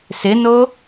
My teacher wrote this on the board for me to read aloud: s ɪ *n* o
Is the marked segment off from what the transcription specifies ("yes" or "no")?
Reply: no